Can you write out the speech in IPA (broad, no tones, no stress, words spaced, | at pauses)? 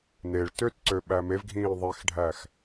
neɭ tøtǀø ɓæmevɡʱĩː ðˤexɖʱæx